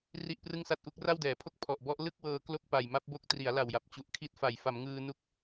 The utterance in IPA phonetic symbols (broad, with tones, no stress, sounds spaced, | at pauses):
r i˥˩ ʔ p r ɯ˥˩ ŋ s a˥˩ t̚ ʔ u˦˥ k̚ r a˥˩ w d ɛː˩˦ pʰ o˥˩ k̚ pʰ ɔ˨˩ ʔ b ɔ˦˥ ʔ l ɯ˥˩ k̚ w ɤː˧ k l o˥˩ k̚ p a˨˩ j m a˦˥ p̚ b o˦˥ k̚ t r i˩˦ a̯ l a˨˩ w j a˨˩ p̚ t͡ɕ u˨˩ ʔ kʰ i˦˥ t̚ f a˩˦ j f a˩˦ m ŋ ɯː˧ n u˦˥ k̚